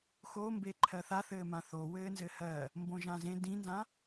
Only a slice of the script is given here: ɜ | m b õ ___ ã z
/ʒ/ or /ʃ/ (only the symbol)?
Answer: ʒ